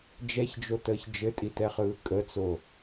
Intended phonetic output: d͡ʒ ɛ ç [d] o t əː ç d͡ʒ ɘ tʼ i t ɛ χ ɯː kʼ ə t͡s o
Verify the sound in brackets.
incorrect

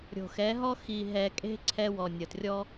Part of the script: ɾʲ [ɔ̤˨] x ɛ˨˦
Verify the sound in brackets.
incorrect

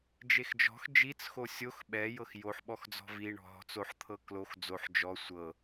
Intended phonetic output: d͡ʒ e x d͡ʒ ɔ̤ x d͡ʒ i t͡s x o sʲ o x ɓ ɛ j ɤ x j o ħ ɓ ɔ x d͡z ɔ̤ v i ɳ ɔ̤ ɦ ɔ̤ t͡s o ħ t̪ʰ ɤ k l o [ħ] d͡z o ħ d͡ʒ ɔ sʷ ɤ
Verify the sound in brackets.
incorrect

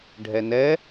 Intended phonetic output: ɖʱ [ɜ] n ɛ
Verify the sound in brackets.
incorrect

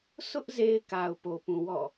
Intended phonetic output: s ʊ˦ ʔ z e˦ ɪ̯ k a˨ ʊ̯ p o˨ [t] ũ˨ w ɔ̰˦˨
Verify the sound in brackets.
incorrect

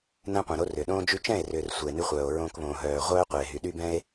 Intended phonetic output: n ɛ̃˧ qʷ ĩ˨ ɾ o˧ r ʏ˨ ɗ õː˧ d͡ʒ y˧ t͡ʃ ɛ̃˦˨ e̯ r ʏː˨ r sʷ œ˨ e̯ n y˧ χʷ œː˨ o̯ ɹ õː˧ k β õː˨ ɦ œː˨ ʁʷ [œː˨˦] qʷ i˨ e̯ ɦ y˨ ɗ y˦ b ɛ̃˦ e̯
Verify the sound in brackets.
incorrect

